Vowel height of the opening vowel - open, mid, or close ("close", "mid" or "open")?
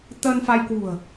mid